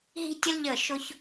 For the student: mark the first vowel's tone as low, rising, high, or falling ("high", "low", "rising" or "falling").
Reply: high